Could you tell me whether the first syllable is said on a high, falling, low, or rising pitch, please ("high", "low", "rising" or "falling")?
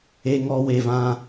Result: high